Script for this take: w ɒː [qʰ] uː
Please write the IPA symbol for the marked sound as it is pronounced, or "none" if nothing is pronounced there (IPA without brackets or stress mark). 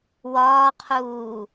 qʰ